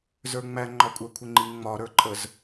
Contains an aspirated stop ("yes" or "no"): yes